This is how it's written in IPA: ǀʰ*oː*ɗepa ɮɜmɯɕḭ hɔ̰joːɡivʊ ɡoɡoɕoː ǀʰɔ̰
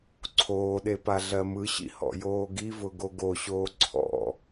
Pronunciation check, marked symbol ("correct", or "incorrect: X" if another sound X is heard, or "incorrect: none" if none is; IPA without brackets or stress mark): correct